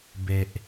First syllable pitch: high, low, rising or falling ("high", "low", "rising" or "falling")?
low